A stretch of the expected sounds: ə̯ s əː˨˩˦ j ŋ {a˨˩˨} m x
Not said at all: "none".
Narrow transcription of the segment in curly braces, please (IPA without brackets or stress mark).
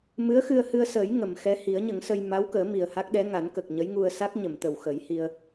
ə˨˩˨